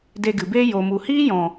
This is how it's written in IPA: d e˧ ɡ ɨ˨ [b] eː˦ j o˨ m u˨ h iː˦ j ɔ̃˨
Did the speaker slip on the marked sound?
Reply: no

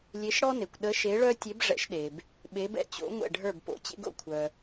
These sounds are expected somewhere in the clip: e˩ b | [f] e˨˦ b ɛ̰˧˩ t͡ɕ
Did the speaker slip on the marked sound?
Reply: yes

